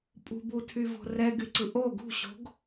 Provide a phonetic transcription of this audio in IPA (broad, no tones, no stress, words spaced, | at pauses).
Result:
pʼṳbutʰyvo̤ rɛɡyǀɯ ʔo ɡṳɕo̤ɡ